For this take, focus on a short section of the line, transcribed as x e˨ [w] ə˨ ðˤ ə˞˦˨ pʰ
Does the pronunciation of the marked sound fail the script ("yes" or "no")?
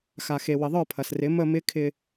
no